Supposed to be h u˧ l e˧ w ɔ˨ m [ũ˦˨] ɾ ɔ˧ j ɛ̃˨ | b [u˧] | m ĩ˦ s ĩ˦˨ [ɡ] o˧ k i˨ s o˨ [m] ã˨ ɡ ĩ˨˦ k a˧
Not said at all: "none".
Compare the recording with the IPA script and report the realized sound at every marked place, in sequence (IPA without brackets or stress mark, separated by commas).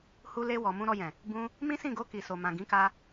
ũ˧, ũ˧, ɡ, m